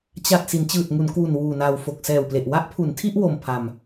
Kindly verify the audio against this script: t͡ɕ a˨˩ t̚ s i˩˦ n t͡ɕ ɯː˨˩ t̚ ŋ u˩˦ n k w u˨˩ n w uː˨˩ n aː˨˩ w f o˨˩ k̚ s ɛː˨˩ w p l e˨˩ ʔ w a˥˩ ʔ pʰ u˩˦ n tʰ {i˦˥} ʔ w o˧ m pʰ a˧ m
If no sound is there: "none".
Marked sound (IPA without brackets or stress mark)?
i˥˩